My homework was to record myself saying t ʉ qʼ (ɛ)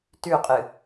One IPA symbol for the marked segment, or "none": ɨ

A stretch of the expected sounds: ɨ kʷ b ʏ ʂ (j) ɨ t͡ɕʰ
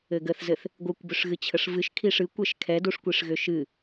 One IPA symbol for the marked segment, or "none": ɣ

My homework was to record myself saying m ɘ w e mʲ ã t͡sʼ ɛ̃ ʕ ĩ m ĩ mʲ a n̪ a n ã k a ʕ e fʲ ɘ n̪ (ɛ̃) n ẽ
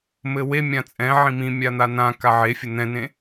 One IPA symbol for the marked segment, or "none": ɛ̃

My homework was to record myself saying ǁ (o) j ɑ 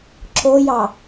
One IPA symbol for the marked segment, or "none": o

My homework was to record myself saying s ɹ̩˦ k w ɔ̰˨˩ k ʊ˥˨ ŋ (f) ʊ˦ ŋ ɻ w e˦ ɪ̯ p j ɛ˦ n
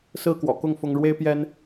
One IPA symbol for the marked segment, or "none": f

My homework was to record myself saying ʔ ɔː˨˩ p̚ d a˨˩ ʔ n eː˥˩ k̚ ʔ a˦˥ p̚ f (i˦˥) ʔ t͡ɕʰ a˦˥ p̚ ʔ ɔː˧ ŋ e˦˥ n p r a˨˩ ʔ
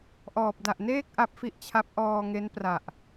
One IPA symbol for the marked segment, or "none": i˦˥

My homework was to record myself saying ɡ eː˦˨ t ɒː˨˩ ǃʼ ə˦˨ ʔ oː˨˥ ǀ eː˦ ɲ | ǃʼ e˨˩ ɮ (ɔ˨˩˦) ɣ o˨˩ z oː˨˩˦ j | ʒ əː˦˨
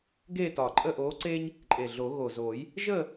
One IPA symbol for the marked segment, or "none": o˨˩˦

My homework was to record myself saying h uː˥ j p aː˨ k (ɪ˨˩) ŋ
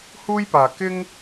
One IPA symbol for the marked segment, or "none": ɪ˥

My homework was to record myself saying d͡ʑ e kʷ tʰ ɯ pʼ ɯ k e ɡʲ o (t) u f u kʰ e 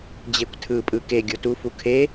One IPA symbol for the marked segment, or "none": t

